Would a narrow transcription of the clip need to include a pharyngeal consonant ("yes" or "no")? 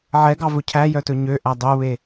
yes